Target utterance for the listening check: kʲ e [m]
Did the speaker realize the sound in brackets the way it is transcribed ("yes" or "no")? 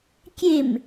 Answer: yes